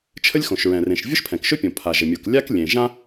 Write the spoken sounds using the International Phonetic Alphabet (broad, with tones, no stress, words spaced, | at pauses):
t͡ʃʰə˥lʲxõ˩ʃɹɛ̃˩rẽ˩ʃ vʲʊ˥ʃpʰɛ̃˩kʃɵ˥pʲõ˩ pʰa˩ʒə˩mʲu˩k lʲa˥k lʲẽ˩ ʒã˥